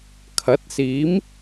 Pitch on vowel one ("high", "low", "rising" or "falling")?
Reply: rising